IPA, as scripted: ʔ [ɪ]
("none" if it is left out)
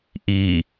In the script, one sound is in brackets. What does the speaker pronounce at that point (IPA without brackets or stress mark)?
i